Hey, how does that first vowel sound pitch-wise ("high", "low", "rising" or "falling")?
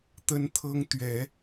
high